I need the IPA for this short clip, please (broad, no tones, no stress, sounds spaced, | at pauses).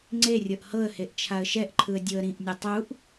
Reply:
ŋ͡ǀ e rʲ ɤ ʔ h ɤ ə̯ h e ʔ t͡ʃʰ a ə̯ ʃ ɛ ʔ ǃʰ ɯ ə̯ dʲ o ə̯ ɾ ĩ ʔ nʲ u tˤ u ʔ